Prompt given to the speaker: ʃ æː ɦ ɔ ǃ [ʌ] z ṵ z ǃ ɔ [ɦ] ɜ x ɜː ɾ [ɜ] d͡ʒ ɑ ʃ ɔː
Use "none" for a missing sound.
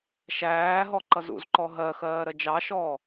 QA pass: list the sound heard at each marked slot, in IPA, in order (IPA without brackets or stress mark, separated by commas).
ʌ, ɦ, ɜ